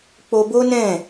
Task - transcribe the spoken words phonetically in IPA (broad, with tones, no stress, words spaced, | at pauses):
k͡po˧bo˦nɛ̃˦˨